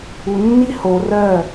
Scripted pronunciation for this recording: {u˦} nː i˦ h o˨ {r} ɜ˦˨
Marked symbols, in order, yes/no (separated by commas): no, yes